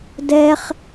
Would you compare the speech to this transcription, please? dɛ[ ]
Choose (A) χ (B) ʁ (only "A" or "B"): A